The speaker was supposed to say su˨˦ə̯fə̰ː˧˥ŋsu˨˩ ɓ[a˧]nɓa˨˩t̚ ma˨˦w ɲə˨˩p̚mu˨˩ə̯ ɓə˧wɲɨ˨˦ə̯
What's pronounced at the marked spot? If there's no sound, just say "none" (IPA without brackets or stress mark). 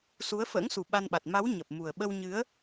a˧